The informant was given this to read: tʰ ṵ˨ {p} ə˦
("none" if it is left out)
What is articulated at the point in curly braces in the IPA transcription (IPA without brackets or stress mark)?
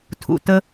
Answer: t